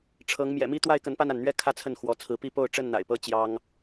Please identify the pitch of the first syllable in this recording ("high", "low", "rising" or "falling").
rising